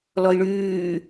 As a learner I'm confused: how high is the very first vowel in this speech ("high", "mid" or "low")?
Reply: mid